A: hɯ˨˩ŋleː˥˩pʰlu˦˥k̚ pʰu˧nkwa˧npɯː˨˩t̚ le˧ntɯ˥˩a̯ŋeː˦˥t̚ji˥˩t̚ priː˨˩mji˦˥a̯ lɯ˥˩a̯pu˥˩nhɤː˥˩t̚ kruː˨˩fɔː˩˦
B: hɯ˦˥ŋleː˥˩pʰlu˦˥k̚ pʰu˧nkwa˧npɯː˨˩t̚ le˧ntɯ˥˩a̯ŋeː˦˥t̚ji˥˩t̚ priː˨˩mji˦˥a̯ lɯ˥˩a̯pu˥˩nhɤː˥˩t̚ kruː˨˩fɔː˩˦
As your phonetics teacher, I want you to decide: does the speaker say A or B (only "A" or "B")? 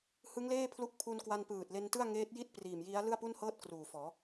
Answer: B